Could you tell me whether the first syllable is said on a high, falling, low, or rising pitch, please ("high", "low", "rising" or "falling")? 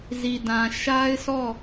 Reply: low